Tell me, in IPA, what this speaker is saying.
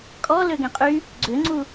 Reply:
kʼɔ løɡɛ̃qʼy | ɡ͡ǀøŋ͡ǀu

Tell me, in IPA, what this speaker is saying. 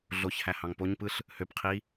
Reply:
ɮoçhæ hɑ̃ŋpoɲpɯɬ | høpqʰi

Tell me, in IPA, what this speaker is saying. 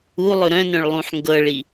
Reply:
u lˠɵɾœ̃nœ̃ɭ lˠũħŋɡɤɭi

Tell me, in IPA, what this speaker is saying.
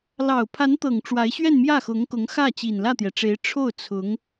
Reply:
lɑ˨˩ʊ̯pʰa˧˥nt̪ɤ˨˩ŋ ʈ͡ʂwa˧˥ɪ̯ɕɥɛ˥˧n mjä˥˩xʊ˧˥ŋkʊ˧˥ŋxä˥˩ t͡ɕi˨˩nlä˥˩t̪jɛ˩ʈ͡ʂe˧˥ɪ̯ ʈ͡ʂʰo˥˩ʊ̯ t͡sʰʊ˧˥ŋ

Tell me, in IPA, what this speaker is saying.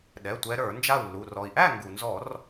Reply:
ɗɛ˩˧˩tʷɛ˨˦ ɾə˞˧˩˧nd͡ʒa˥˨u̯lːu˩˧˩r ɔ˩i̯ʔæ˥˨ŋɡu˩nzɔ˧˩˧r

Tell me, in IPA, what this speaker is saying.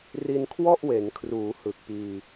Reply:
ri˧nkʰwɔ˥˩ʔwe˩˦nkʰruː˩˦ hɯ˨˩k̚piː˧

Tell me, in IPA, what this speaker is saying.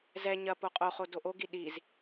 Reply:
zɛ ɲɐ poqʼoχo doʔoɡi ɗiz

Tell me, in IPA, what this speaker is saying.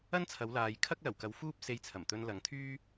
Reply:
ɐ˥nt͡sʰɐ˨˧wlaː˨j kʰɐ˥k̚lɐ˨˩wkɐ˨˧w fuː˥p̚se˧jt͡sʰɐ˨˩mt̪ɵ˧n lɐ˨ŋt̪ʰyː˥

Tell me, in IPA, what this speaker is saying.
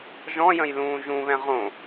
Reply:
ʒɔ̃jə̃j lũːʒũβɛ̃ ʁõ

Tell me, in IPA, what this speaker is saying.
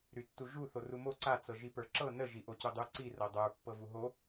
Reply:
ɾytːuʒu θorumo ǀa t͡sɤʒipə˞ǁɤ nə ʒiʔocudˤu ǀi rɤdˤə˞ pːɤvuɦo

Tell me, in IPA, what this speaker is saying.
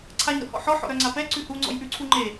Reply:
ǀʰaɲ ɾɔ̰hɔ̰ħɔ ħɔ̰ɾœŋ͡ǀapɛ ǀʉhu ŋ͡ǀɔ̰jʔʉǀʰuŋ͡ǃe

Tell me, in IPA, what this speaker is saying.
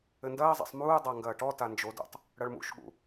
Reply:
ɘndɐːzˤa̰sˤ muː dˤaŋɡɐːʈɔta nd͡ʒodṵtˤ | ɽɐɭmṵʃɠṵ

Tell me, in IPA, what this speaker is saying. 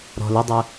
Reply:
ɾɔ̤l ʊdˤœ

